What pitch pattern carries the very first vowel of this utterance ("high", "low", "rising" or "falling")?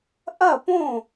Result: falling